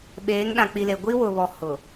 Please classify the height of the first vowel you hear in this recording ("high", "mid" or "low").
mid